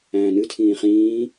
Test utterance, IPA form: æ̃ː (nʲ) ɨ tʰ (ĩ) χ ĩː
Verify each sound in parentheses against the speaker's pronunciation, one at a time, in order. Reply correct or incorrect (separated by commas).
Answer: incorrect, incorrect